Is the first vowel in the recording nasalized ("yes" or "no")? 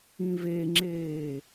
yes